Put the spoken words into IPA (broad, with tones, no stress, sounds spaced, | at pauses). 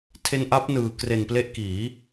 tʰ e˧ n ʔ a˦˥ p̚ n ɯː˨˩ k r e˨˩ n p l e˦˥ ʔ k iː˩˦